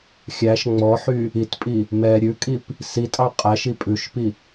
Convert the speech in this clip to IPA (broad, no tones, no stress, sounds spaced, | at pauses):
xʲ æ ʃ ŋ͡m ɔ ħ y | i t pʼ i | m ɛ ɾʲ ʉ kʼ i p | s i tʼ ɑ qʼ æ ʃ i pʼ ʉ ʃ p i